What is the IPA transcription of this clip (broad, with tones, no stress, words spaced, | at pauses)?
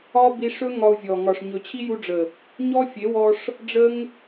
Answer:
ɒ˦bi˧ʂɵ˦ ŋɒ˧u̯vʲɔ˨ ŋɒ˨ʂɲɵ˨t͡ɕʰi˦ ju˦ɖ͡ʐə˨ | ɲɔ˦fʲe˨˦wɔ˧ʂ | ɖ͡ʐə˦ŋ